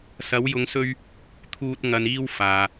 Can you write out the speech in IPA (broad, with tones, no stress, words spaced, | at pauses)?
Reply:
sɐ˨˧wjʊ˨˧ŋsɵ˧ɥ | t̪ʰuː˧t̚ ŋɐ˨niː˧w faː˧